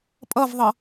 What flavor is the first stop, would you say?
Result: ejective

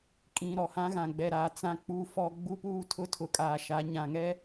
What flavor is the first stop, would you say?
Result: ejective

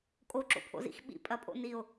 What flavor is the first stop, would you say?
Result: ejective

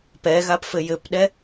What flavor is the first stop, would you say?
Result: plain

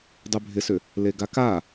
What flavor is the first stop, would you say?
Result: plain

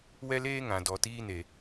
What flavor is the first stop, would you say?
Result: plain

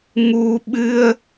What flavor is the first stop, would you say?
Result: implosive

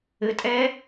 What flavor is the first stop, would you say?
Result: ejective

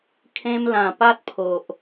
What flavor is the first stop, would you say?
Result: aspirated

